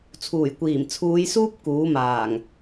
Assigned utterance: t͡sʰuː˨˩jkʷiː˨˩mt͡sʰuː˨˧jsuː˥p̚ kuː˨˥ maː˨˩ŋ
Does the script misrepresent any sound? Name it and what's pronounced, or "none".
none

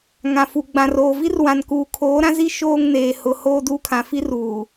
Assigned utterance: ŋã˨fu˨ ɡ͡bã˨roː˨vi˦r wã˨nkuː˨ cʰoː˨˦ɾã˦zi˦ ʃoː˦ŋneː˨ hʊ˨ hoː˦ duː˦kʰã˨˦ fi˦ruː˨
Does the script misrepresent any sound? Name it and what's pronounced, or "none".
cʰ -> kʰ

